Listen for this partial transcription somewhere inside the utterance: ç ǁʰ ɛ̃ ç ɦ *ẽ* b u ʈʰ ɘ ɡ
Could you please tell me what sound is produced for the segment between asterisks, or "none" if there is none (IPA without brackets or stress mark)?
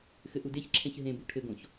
ẽ